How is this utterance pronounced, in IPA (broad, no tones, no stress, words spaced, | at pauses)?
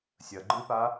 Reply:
sʲɐɡ͡ǃɨpa